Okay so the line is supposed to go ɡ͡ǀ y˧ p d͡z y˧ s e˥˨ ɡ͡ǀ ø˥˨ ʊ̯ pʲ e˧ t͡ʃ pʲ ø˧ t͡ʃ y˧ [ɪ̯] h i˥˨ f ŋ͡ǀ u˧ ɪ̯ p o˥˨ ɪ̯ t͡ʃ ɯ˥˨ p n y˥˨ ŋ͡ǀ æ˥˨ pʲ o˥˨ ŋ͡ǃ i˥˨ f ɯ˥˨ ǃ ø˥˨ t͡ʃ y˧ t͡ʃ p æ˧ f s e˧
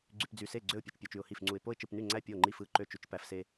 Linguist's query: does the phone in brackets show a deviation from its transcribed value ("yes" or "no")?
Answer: yes